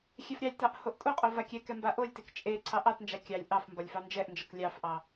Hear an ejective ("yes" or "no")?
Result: yes